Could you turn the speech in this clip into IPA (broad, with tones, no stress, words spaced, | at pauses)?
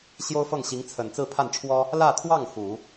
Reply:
ɕjo˥ʊ̯fɤ˥˩ŋɕi˧˥ŋt͡sʰə˨˩n t͡sɹ̩˥˧pʰa˥˩nʈ͡ʂʰwɔ˥ | lä˥˧t̪ʰwɑ˥˩ŋ xu˨˩˦